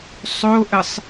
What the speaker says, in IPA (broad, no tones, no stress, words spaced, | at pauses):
sˤoʔəsˤ